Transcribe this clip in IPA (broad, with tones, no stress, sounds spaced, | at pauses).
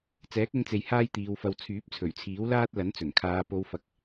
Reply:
t͡s ɛː˨˥ k̚ ʊ˧ ŋ t͡s e˨ j h aː˥ j t̪ iː˨˧ w f ɐ˧ w t͡sʰ yː˨˥ p̚ t͡sʰ ɵ˨˩ ɥ t͡sʰ iː˨˥ w l aː˥ t̚ l ɐ˨˥ n t͡s ɵ˨˩ n kʰ aː˨˧ p o˨˧ w f ɐ˨ k̚